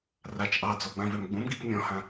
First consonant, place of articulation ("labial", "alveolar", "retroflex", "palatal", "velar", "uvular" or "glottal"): alveolar